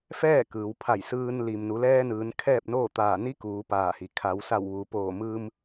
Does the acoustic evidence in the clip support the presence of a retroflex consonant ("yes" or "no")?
no